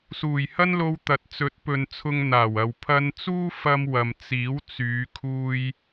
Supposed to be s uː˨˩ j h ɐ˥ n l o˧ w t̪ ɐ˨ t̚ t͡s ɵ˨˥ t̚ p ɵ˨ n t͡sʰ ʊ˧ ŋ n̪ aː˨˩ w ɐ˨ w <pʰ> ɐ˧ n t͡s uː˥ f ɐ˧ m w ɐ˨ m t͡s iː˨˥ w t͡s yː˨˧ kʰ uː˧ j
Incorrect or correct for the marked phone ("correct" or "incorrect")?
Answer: correct